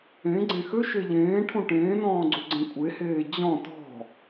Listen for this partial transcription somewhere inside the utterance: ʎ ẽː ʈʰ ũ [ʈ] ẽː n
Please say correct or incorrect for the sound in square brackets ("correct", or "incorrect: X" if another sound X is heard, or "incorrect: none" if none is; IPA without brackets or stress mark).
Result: correct